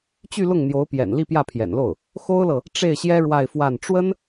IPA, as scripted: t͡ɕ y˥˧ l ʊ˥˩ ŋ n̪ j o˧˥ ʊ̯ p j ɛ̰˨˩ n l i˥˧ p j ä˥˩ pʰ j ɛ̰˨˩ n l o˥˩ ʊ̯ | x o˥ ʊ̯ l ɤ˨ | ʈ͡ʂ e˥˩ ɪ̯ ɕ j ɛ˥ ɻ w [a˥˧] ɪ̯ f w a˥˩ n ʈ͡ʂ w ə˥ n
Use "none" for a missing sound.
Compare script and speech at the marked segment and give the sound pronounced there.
a˥˧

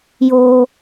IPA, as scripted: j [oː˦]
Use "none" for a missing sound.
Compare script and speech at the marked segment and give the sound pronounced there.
oː˦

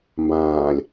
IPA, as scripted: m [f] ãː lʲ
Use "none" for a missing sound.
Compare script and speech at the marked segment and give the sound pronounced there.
b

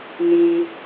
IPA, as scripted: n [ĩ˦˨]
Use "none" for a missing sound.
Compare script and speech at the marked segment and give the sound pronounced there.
ĩ˨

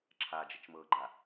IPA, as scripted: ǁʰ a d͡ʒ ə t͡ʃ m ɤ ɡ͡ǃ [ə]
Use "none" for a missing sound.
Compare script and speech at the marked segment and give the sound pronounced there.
a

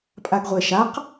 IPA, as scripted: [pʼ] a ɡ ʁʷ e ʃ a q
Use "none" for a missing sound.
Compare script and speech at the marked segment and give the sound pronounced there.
pʼ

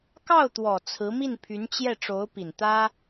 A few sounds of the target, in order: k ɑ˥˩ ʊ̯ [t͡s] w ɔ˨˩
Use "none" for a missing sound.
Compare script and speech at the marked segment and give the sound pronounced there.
t̪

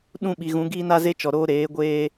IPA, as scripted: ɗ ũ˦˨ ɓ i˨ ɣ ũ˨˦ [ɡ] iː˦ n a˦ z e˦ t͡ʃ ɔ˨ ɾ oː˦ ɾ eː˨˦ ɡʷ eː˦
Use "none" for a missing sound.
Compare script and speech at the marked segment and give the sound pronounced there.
ɡ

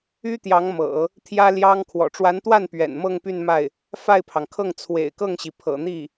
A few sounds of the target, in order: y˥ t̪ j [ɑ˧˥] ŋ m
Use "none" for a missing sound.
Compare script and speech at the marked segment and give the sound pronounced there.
ɑ˧˥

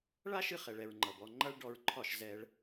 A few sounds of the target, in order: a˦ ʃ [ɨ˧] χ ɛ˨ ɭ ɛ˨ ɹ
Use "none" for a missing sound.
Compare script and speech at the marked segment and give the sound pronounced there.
ɨ˧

